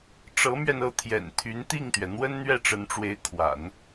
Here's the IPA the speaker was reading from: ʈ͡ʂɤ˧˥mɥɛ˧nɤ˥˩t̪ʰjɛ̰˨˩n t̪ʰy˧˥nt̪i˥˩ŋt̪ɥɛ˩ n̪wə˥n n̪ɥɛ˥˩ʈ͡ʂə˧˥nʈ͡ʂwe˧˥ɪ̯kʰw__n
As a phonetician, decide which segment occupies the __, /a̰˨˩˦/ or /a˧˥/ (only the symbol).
a̰˨˩˦